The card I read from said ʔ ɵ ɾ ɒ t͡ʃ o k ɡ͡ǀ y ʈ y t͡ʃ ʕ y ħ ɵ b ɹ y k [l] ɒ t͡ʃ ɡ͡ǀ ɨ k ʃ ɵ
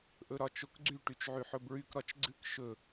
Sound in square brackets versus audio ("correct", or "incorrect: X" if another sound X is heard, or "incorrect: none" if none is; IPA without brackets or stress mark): incorrect: ɾ